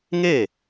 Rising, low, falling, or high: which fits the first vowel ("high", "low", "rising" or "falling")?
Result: falling